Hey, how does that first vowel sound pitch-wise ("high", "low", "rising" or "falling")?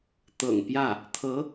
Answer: low